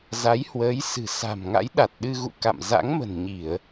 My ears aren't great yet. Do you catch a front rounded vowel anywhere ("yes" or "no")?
no